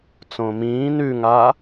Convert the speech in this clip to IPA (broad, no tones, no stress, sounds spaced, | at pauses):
t͡s õ m ĩː n ʉ ŋ a